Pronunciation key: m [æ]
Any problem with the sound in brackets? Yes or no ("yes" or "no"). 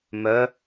yes